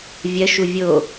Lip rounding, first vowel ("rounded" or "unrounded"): unrounded